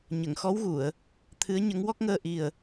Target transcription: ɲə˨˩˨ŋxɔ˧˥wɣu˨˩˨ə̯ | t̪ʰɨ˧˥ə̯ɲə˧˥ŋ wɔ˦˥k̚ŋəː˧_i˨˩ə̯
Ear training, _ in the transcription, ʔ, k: ʔ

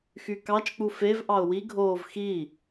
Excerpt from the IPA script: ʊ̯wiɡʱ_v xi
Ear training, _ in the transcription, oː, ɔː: oː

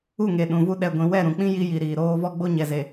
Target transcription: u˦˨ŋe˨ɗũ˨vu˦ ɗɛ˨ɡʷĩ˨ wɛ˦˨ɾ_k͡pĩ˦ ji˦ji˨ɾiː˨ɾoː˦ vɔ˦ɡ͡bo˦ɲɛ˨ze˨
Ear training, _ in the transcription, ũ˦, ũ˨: ũ˨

